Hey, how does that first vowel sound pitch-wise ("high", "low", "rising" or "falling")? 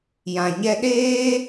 low